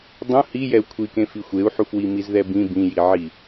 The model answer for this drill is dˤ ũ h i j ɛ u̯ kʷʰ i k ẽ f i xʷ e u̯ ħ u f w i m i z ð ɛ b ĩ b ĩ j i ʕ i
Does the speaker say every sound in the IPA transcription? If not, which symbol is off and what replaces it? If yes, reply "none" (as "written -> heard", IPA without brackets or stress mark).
none